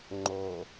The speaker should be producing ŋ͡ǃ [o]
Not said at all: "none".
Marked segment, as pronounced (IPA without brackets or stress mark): o